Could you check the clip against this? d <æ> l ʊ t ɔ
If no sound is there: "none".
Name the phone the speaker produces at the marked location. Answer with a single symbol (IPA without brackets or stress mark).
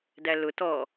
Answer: æ